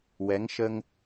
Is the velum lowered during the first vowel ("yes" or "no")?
no